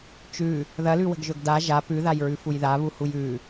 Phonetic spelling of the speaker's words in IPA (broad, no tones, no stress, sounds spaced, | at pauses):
t͡ʃ ʉ | ð ɐ l ʉ w ə̤ ɡ ʒ ɵ ɡ d a ʒ a p ʉ ð a j ɹ ʉ f u j ð a β u h u j ʉ